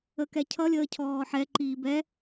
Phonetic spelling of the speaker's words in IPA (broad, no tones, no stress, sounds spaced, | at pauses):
ə k ɛ cʰ ʌ lʲ əː cʰ ɔː ħ ɛ ǃ iː b ɛ